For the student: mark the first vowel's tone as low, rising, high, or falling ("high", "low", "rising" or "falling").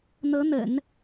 rising